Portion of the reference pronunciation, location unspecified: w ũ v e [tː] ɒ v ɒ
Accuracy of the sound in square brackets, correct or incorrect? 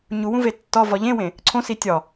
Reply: correct